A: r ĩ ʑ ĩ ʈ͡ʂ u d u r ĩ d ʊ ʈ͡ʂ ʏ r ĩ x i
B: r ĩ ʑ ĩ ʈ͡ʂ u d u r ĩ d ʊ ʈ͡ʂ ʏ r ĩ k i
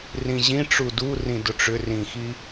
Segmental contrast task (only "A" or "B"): A